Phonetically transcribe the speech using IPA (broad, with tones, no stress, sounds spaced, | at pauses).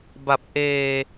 b a˨˩ p̚ ʔ eː˧